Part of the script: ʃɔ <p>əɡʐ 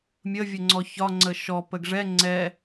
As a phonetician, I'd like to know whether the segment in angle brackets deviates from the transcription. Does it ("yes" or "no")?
no